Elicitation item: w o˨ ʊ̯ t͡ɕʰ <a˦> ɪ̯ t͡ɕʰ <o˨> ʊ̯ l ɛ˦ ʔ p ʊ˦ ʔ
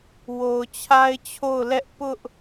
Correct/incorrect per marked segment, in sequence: correct, incorrect: o˦˨

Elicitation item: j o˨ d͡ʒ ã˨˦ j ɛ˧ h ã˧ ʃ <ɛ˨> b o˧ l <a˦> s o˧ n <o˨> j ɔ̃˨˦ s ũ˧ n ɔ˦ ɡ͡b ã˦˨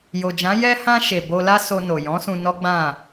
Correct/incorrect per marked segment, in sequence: incorrect: e˨, correct, correct

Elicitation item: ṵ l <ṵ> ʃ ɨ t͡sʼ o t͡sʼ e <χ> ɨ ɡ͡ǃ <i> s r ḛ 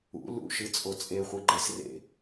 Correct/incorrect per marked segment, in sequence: correct, incorrect: χʷ, incorrect: e

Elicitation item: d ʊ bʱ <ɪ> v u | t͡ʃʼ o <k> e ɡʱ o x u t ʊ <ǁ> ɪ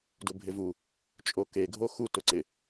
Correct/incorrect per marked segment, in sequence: correct, correct, incorrect: ǀ

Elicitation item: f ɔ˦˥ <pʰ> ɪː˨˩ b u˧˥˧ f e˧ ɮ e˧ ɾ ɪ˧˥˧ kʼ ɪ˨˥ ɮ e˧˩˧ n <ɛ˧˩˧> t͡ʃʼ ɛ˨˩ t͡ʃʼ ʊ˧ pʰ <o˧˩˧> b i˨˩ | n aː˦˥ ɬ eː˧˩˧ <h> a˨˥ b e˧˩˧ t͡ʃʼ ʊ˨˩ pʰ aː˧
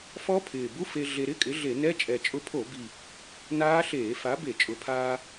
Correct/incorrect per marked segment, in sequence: correct, incorrect: ɛ˧˥˧, correct, incorrect: f

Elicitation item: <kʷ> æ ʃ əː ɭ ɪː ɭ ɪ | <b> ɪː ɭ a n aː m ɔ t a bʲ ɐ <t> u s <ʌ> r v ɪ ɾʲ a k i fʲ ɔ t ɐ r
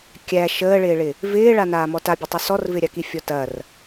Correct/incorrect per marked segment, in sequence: incorrect: kʲ, incorrect: v, incorrect: tˤ, incorrect: ɔ

